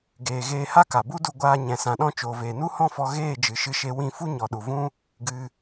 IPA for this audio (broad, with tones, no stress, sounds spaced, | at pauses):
ɡ eː˨ ɣ eː˧ h a˦ k a˨ b u˦ d u˧ ɡʷ aː˧ ɲ ɛ̃˨ s ã˨ ɗ ɔ̃˧ t͡ʃ oː˨ v eː˨ n u˦ h ɔ̃˦ f ɔ˧ ɣ eː˦˨ d͡ʒ ɨ˨ ʃ ɨ˧ ʃ e˧ w ĩ˦˨ f u˦ ɲ ɔ˨ ɗ u˨ v ũ˦ | ɡ ɨ˧